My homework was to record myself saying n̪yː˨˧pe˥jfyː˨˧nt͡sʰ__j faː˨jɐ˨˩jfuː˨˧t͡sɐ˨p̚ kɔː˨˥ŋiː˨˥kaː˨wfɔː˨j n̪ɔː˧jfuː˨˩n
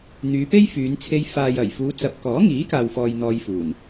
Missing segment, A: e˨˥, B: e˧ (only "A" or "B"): B